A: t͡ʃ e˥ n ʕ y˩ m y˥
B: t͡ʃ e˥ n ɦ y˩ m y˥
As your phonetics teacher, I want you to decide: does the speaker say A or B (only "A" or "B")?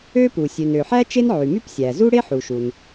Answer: A